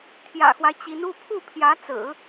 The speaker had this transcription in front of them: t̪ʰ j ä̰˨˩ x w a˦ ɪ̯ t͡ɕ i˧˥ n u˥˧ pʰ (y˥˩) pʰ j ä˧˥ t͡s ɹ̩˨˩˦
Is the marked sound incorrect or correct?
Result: incorrect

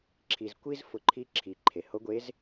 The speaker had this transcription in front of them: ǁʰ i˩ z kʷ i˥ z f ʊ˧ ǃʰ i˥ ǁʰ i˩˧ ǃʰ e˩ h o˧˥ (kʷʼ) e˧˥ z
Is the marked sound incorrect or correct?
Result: incorrect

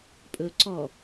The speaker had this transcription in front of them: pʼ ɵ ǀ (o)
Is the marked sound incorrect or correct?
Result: incorrect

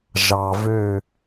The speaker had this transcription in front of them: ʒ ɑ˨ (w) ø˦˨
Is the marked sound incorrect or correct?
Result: incorrect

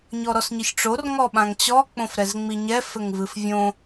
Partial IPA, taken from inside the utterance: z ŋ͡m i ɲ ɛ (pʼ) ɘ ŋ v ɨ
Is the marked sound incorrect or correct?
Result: incorrect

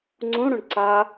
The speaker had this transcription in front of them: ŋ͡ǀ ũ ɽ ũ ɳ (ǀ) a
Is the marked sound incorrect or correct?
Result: correct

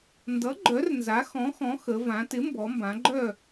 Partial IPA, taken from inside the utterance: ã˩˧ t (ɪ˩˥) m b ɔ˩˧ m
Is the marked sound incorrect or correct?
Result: correct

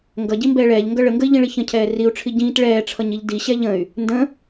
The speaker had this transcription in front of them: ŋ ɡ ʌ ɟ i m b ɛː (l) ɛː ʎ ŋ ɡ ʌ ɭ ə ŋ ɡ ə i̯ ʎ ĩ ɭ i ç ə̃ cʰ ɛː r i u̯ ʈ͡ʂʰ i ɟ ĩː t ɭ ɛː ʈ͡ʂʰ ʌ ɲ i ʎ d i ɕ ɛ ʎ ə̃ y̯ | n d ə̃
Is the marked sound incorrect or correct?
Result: incorrect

